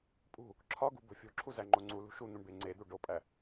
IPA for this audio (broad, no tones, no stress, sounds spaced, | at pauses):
pʼ ṳ | ǁʰ ɒ ɡ ṳ b o̤ fʲ o̤ ǁʰ u z æ ŋ͡ǃ o ŋ͡ǀ u l ṳ ʃ u n̪ ũ ɳ b e ŋ͡ǀ e d̪ u ɖ o pʼ æ